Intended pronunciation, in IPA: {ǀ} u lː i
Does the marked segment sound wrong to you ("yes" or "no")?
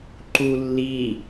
yes